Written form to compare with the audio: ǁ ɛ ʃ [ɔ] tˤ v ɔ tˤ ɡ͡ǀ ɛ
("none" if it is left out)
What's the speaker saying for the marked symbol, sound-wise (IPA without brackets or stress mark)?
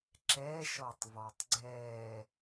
ɔ